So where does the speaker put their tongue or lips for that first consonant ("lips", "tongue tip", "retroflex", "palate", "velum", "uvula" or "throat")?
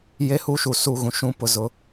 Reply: palate